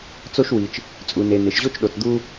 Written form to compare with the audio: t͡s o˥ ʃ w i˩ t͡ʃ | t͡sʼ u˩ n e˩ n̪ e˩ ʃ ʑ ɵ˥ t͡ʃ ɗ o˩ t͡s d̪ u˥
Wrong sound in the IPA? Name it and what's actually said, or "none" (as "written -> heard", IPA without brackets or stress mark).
ɵ˥ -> o˥